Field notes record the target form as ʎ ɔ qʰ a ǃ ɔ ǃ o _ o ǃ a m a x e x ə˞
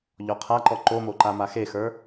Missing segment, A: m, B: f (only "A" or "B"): A